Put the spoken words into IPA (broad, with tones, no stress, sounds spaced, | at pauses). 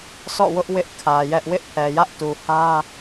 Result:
s ɔ̰˦˨ w ʊ˦ ʔ w ɪ˦ ʔ kʰ ä˨ j ɛ˦ ʔ w ɪ˦ ʔ pʰ ɛ˨ j ä˦ ʔ t u˨ h ä˦